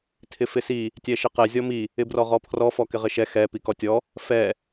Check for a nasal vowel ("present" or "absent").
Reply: absent